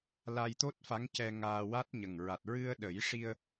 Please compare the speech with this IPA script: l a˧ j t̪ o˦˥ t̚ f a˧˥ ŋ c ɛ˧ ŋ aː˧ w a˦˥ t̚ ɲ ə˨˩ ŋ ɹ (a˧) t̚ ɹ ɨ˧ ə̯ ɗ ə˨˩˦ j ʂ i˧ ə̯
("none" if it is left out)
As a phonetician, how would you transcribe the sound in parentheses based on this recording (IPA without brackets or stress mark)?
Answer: a˨˩